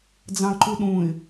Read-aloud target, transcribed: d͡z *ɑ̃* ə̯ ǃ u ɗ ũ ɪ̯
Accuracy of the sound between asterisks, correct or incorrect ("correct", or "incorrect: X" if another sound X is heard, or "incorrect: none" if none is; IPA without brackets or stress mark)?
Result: correct